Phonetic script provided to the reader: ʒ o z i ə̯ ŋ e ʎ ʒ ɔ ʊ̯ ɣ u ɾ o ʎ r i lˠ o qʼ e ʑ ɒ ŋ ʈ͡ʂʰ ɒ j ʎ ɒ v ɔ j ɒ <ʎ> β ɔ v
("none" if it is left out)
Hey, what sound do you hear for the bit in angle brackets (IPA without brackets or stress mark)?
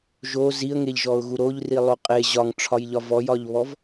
ʎ